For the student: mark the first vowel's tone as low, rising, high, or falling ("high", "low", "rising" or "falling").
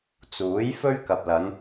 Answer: rising